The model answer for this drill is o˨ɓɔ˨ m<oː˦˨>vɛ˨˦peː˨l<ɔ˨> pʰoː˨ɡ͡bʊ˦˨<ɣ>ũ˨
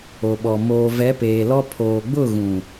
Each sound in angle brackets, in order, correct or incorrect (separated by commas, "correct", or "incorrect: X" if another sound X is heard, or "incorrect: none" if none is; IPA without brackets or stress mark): incorrect: oː˨, incorrect: ɔ˦, correct